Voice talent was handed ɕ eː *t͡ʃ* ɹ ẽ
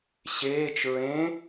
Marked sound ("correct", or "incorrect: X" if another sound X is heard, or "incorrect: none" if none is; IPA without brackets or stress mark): correct